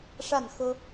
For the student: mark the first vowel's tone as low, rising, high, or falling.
falling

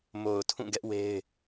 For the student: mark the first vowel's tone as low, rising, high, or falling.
low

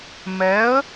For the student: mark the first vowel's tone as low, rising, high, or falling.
rising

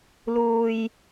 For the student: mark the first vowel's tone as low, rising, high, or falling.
low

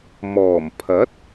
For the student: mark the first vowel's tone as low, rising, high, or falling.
low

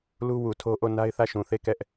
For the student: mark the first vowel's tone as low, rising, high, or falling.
high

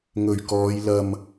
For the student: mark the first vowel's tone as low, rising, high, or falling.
low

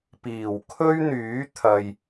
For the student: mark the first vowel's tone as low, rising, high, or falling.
low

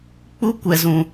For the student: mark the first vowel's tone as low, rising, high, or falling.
high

